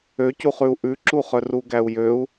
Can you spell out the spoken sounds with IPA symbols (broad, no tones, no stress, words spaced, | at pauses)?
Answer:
øcuχʉu̯ ʔʉǁuχœr uɡæu̯jøu̯